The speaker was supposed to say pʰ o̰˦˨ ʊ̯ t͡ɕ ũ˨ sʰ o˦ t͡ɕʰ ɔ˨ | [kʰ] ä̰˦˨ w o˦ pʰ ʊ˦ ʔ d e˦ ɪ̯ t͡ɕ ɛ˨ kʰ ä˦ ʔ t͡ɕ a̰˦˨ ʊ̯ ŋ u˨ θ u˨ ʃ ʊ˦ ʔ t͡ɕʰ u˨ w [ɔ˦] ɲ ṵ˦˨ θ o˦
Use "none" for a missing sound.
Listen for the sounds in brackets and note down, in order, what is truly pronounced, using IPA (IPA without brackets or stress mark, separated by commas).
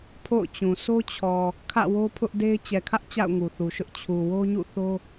kʰ, o˦